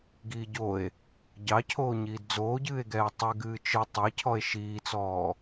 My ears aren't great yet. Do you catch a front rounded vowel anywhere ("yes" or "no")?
no